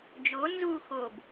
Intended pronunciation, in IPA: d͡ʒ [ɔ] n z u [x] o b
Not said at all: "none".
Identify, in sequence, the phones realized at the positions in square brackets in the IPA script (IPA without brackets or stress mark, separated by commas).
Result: o, x